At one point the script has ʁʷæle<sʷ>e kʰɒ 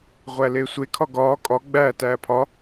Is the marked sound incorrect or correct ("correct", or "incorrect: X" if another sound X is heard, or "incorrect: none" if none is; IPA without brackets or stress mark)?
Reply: correct